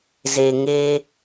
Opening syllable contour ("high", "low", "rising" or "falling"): low